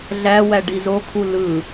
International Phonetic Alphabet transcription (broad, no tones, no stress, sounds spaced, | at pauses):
ɮ æ w æ ɖ i z o kʰ u l ɯ